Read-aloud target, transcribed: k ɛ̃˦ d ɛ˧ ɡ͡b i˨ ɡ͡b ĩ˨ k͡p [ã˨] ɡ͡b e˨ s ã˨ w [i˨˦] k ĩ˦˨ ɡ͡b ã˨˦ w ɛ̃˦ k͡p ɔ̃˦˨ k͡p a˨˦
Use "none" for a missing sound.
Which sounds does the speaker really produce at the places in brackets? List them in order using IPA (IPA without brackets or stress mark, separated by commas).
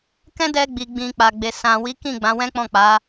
a˨, i˨˦